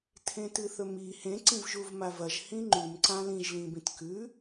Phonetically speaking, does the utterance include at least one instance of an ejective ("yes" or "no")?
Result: no